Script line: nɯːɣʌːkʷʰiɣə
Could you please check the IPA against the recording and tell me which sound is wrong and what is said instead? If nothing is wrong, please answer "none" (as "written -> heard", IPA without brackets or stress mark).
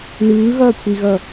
ə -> ʌ